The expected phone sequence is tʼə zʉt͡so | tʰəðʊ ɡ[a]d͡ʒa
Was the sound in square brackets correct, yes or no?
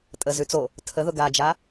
yes